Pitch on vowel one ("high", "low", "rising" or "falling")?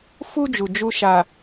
high